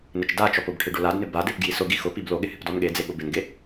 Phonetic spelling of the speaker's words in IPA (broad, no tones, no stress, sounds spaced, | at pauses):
n ɪ t͡ʃ d a t͡ʃ ɔ p ʊ b ʈʰ ɪ ɖ o l a d n ɪ b a d e p ɡ j i s ʊ ɡ i x ʊ p i b l o ɠ ɪ h ɪ p d ɔ n ɠ e d͡z e ɠ ʊ b ɪ n ɡ e